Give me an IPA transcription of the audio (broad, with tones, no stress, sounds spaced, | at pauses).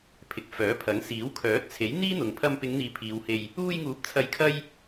pʰ ɪ˨˥ k̚ f œː˨˥ pʰ ɐ˨˥ ŋ s iː˨˥ w kʰ œː˨˥ t̚ t͡sʰ e˨˥ j n̪ iː˥ n̪ ʊ˨ ŋ pʰ ɐ˧ m p ɪ˨˧ ŋ n̪ iː˨ pʰ iː˨˧ w h e˧ j | uː˧ j ŋ uː˨˥ p̚ t͡sʰ ɐ˨˧ j kʰ ɐ˥ j